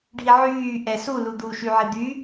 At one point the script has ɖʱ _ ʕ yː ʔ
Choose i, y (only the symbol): i